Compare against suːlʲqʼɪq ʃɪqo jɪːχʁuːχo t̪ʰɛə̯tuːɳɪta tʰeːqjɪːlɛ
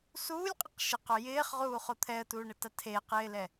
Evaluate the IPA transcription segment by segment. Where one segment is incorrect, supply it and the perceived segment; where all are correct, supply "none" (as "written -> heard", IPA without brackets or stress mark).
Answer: none